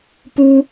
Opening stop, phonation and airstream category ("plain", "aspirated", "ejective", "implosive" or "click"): plain